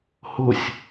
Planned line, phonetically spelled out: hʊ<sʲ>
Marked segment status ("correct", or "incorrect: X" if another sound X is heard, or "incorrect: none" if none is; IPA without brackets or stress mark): correct